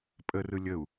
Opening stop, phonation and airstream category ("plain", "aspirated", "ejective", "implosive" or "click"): ejective